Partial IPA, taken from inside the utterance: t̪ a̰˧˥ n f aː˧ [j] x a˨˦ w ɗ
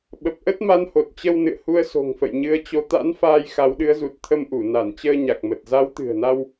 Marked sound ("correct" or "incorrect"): correct